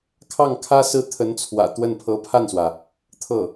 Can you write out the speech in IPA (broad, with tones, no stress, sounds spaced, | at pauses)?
kʰ ɑ˥˩ ŋ kʰ ä˥ s ɹ̩˥˩ t̪ʰ ə˧˥ n t͡sʰ w ä̰˨˩ t̪ w ə˥˩ n pʰ ɤ˧˥ pʰ a˥˩ n s w ä˩ | t̪ʰ ɤ˥˩